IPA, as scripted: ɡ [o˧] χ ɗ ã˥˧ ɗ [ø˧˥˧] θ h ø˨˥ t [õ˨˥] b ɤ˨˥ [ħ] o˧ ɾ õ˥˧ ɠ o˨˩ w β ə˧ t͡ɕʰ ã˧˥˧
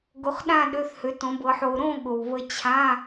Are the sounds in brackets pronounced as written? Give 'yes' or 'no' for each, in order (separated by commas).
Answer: yes, yes, yes, yes